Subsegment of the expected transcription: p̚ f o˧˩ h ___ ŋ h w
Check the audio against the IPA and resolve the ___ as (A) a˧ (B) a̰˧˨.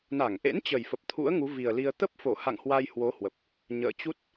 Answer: B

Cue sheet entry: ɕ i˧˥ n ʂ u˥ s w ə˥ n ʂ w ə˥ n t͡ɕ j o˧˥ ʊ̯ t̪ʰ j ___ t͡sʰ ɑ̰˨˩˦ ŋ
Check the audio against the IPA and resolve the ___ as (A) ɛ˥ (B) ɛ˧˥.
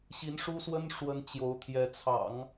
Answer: B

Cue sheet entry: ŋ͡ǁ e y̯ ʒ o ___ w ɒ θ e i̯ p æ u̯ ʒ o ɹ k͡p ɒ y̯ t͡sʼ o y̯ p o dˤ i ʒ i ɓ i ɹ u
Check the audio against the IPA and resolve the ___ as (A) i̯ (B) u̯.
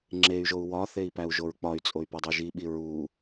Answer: B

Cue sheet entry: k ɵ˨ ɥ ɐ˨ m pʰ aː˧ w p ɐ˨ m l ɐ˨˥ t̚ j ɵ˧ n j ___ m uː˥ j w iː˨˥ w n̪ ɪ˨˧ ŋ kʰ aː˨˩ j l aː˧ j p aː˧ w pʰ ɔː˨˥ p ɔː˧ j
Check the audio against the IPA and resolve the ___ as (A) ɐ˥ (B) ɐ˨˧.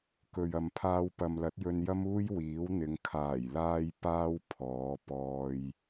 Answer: A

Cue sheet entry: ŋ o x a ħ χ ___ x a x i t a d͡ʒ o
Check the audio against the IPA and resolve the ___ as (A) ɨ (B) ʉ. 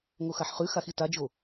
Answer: B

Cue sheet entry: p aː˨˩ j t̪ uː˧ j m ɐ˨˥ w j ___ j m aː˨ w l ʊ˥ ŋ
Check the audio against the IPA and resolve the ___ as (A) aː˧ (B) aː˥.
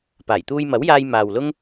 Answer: A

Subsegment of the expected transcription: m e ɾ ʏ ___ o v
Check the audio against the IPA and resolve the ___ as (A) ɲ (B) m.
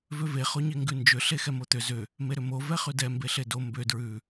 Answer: B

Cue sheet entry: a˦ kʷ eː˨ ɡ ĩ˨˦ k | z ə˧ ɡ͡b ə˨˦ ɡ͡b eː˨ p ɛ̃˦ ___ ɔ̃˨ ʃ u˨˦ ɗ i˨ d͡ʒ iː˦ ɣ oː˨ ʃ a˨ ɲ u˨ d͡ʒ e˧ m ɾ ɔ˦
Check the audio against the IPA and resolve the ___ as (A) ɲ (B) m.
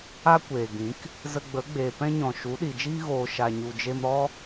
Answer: A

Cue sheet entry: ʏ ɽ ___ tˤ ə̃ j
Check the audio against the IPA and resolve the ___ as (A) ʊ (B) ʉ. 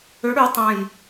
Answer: B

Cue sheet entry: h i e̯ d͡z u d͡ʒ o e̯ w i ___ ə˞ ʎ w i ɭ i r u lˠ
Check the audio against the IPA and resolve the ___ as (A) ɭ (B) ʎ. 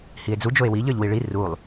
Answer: B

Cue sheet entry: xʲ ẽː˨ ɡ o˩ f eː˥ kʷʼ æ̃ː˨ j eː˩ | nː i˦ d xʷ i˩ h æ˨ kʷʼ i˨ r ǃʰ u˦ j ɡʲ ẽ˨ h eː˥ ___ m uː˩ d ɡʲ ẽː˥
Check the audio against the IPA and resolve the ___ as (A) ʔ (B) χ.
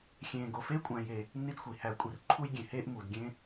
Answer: A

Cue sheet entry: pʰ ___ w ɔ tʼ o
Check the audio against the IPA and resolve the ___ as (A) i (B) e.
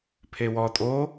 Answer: B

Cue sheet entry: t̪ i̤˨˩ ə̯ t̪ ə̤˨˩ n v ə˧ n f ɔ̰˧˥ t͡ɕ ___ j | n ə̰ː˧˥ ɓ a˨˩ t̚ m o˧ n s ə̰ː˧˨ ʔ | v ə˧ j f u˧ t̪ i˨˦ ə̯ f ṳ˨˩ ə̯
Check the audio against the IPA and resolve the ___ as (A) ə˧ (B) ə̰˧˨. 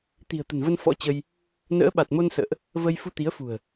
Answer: A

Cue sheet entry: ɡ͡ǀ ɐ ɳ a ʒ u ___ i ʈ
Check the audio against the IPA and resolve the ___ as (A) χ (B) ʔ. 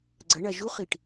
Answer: A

